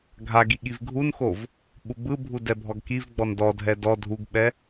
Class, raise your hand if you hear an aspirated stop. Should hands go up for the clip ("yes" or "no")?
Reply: no